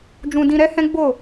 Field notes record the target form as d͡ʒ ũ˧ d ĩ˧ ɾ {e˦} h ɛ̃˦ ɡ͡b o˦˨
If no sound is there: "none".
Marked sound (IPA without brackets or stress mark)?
ɛ˦